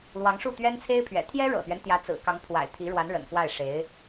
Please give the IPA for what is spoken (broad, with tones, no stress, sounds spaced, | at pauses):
l w ɑ˧˥ ŋ ʂ u˥˩ t̪ ɥ ɛ˥ n t͡sʰ e˥ ɪ̯ pʰ ɥ ɛ̰˨˩ t̪ʰ j ɛ˥ ɻ ɤ̰˨˩ t̪ ɥ ɛ˦ n t̪ j ä˧˥ t͡s ɹ̩˨˩ k ɑ˧˥ ŋ pʰ w a̰˨˩ ɪ̯ t̪ʰ i˧˥ ɻ w a˧˥ n ɻ ə̰˨˩ n k w a˥˩ ɪ̯ ʂ e˧˥ ɪ̯